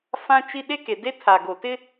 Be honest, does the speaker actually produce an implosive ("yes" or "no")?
yes